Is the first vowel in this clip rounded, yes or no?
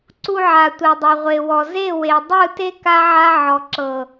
yes